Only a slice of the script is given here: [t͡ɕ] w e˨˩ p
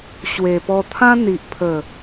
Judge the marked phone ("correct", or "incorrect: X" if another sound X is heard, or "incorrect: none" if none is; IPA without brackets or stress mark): incorrect: ɕ